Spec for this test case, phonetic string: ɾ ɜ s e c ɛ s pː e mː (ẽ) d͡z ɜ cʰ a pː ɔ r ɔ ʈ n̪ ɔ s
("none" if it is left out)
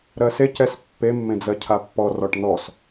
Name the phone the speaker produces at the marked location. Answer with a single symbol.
ẽ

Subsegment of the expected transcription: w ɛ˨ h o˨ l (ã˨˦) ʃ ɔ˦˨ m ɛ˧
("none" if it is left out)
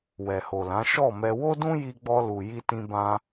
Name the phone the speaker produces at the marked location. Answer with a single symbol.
ã˨˦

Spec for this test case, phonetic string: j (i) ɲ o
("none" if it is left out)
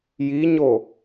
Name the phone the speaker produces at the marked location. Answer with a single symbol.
i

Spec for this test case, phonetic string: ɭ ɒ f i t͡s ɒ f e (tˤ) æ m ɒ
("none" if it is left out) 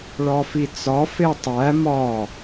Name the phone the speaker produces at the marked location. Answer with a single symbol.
tˤ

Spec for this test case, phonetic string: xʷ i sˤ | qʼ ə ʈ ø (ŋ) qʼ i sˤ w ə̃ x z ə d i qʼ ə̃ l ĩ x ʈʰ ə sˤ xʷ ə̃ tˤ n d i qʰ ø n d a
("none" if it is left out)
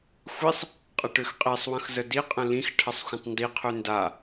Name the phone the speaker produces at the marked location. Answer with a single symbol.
x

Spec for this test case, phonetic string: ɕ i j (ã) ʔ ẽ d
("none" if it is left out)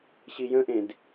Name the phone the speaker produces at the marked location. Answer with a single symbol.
ə̃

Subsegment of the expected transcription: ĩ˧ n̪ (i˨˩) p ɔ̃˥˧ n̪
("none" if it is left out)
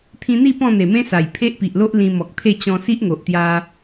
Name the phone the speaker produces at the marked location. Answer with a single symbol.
i˥˧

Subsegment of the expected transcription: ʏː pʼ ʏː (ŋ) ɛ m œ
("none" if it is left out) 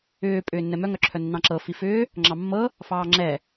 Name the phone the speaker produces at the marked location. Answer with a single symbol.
nː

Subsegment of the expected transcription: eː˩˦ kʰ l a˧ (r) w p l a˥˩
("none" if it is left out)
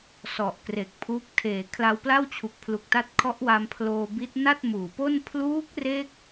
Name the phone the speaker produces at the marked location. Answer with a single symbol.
none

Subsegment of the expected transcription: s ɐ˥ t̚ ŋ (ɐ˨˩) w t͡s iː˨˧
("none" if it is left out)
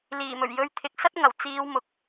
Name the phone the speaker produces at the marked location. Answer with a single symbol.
ɐ˨˩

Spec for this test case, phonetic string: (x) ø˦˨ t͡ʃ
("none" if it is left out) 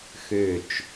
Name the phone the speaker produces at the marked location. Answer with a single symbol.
x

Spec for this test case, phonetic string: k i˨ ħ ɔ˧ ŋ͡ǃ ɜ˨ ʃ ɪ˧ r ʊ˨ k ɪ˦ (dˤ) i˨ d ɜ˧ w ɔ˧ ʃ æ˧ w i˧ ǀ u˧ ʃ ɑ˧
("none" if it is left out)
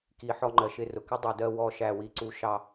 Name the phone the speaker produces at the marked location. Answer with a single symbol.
dˤ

